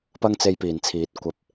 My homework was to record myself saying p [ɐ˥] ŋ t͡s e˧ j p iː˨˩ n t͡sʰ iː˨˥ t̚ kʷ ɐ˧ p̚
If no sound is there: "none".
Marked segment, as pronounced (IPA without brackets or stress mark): ɐ˥